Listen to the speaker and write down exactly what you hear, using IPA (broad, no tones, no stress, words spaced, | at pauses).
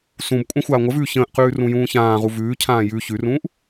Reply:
sũb kʷʼãxʷaːŋʷəvʉː çə̃ːʔqʉː rũjũːçãːʁu vʉːcʰãː jʉ çʉrũːʔ